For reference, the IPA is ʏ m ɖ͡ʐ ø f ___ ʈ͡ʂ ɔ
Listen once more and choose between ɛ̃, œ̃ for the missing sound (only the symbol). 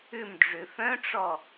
œ̃